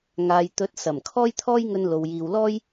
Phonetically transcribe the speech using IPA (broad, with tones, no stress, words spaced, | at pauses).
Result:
ŋaː˨jt̪ɵ˨˥t̚ sɐ˨˩m kʰɔː˥jt̪ʰɔː˥jŋɵ˧nlo˨w jiː˨wlɔː˥j